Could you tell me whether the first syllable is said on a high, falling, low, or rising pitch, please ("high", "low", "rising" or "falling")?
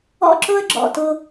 high